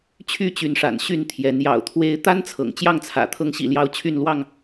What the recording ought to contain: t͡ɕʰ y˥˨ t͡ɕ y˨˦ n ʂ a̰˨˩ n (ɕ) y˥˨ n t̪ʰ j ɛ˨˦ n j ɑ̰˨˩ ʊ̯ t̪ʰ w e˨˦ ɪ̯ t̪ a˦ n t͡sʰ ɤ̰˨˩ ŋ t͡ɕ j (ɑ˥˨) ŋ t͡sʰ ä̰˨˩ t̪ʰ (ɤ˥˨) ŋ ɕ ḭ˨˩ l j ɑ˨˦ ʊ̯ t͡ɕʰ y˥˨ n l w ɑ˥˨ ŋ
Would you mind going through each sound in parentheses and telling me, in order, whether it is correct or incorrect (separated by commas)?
correct, correct, incorrect